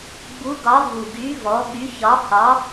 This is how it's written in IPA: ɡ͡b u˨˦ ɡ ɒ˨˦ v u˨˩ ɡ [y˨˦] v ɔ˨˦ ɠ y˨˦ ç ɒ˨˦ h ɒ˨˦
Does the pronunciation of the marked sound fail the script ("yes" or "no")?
no